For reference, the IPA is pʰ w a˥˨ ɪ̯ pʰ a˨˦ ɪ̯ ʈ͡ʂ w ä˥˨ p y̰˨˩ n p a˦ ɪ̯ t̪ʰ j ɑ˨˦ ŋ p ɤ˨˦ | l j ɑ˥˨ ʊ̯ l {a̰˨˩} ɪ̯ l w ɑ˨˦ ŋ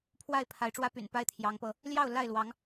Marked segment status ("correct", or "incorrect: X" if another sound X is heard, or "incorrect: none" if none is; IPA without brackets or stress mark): incorrect: a˥˨